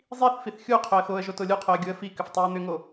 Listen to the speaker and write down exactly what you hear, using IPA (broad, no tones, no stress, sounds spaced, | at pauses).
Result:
zˤ i θ f i θ xʲ u qʰ ɵ ə̯ x o ə̯ ʒ o t o lʲ u qʰ o ə̯ ɡʲ u ə̯ f i k ʏ f tˤ o ə̯ n̪ ʏ ŋ o